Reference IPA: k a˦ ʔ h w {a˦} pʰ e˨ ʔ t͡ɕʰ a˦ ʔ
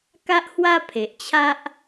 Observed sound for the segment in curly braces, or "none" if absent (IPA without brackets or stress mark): a˦